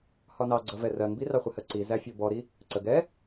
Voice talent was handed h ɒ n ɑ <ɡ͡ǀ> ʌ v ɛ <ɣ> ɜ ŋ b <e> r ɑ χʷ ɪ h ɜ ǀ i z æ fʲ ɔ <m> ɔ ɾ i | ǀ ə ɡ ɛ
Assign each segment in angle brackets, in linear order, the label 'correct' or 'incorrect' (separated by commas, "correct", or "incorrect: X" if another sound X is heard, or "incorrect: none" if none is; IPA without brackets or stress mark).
correct, incorrect: r, incorrect: i, incorrect: b